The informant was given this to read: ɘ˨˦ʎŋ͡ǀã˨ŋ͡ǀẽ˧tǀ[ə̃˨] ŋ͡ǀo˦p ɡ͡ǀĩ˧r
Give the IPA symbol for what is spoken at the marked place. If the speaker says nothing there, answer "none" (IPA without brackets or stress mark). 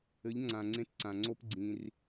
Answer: ã˨